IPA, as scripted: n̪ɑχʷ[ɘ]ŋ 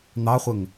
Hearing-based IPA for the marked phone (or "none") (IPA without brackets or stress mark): ɘ